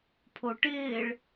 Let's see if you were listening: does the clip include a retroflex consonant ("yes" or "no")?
yes